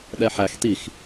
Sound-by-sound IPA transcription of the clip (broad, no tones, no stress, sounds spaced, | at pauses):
ɗ ɛ ħ æ x t i x